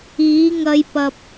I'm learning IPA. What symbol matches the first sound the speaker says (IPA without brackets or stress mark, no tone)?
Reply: iː